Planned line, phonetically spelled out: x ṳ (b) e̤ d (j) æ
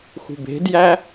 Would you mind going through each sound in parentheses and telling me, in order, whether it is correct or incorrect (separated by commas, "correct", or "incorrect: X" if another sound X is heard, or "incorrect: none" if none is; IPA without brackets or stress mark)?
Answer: correct, correct